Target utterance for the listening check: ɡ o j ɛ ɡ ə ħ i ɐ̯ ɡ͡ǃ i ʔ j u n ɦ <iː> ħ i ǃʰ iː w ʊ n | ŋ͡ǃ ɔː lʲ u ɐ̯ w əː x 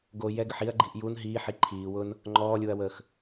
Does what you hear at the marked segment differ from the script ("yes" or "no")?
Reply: no